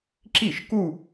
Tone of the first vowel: falling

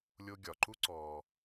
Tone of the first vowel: high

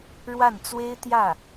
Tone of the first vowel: falling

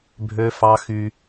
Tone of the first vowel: high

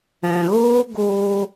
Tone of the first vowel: low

